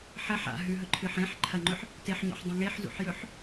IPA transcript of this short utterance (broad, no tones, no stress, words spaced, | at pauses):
ħɐħ a̰ɦʉɦɵǃʰɨħ ẽħ ǃʰɐŋ͡ǃɵħ | teħɲo̰ħdˤẽ ŋeħzṵħjɵħ